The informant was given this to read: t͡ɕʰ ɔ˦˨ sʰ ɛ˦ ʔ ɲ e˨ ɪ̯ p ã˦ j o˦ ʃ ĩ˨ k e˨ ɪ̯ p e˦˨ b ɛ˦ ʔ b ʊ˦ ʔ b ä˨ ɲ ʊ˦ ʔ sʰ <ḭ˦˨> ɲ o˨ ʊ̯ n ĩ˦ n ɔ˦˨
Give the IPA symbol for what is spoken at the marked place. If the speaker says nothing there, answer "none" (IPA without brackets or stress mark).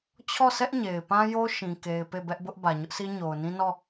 i˦